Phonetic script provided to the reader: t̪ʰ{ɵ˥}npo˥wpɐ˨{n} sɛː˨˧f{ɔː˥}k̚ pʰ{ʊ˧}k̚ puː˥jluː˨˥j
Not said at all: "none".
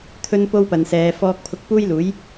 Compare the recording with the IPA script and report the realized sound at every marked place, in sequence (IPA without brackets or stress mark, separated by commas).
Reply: ɵ˥, n, ɔː˥, ʊ˧